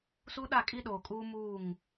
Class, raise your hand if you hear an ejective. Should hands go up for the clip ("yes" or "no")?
yes